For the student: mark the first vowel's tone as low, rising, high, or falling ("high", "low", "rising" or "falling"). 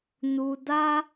high